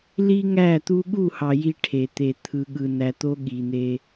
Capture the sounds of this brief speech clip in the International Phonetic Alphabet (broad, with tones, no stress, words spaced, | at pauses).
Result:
li˦ŋæ˦˨t̪u˦ ɠu˦˨hɑ˨ ji˦ʈʰe˨t̪e˨ t̪ʰɯ˨ɠɯ˨ næ˨t̪o˦ ɠi˨n̪e˦